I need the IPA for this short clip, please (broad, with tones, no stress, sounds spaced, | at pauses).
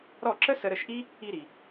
ɾ ɔ˥˩ ǁ ə˥ s ə˧ ɾ ə˥˩ ʃ ʔ i˥ | i˧ ɾ i˩